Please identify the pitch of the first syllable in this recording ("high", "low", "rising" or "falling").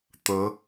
rising